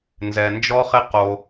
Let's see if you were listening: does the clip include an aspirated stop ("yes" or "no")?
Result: no